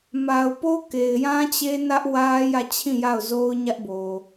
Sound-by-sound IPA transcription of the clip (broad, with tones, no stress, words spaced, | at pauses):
ma˨ʊ̯po˦ ke˨ɪ̯jã˦t͡ɕe˦ nä˦ʔwä˦ jä˦˨t͡ɕʰĩ˦˨ja˦˨ʊ̯zo˦ʊ̯ ɲä˦ʔbo˨